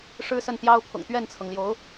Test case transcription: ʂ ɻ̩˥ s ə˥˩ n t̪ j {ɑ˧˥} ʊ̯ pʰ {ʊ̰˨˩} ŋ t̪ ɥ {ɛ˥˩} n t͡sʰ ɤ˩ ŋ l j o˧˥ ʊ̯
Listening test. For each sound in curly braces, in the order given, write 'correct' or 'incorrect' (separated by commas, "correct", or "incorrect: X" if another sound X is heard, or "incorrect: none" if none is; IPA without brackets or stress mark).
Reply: incorrect: ɑ˥, correct, correct